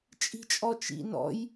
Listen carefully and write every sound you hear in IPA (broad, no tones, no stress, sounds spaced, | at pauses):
t͡ʃʼ i̤ t͡ʃʼ ɔ t͡ʃ ḭ n ɔ̰ j